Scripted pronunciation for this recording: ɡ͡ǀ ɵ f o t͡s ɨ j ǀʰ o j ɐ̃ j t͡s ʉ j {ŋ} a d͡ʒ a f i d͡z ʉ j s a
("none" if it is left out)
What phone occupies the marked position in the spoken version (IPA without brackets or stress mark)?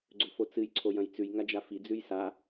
ŋ